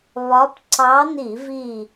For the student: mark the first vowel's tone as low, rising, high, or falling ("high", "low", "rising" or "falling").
rising